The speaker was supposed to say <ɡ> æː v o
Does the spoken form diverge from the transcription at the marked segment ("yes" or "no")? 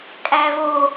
yes